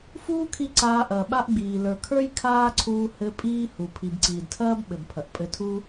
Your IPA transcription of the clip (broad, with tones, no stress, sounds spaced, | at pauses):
f uː˦ kʰ i˧ ǀ aː˧ ʔ ɐː˨ ɓ a˦ ʔ ɡ͡b iː˨ l ə˞˨ kʰ ə˞˦ j kʰ aː˦ ǀʰ uː˧ h ɘ˧ pʼ iː˦ h u˨ pʰ i˨ b ǀ iː˨ d tʰ ɐː˦ b ɓ ɘ˨ b pʰ ɐ˨ ʔ pʼ ɘ˧ tʰ u˦